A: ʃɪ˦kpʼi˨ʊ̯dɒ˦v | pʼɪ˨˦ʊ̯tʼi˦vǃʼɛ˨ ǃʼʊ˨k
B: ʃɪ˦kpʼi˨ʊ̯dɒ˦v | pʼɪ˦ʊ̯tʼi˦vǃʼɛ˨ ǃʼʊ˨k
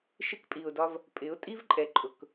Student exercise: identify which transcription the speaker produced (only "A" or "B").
A